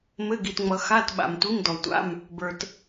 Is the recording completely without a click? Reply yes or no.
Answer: yes